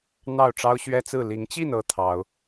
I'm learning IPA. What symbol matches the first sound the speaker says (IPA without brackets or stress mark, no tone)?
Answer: n̪